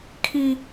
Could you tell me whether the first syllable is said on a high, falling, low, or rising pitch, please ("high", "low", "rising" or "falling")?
high